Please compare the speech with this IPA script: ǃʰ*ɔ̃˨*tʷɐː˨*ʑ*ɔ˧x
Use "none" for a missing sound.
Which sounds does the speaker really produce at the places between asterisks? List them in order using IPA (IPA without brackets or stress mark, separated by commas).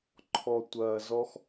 ɔ˨, z